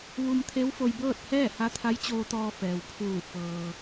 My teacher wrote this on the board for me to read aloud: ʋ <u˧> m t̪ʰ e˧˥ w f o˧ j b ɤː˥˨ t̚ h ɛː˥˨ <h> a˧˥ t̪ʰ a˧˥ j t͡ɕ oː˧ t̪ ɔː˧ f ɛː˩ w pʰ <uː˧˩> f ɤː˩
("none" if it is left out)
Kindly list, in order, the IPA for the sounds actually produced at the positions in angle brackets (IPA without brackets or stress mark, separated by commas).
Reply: u˧, h, uː˧˩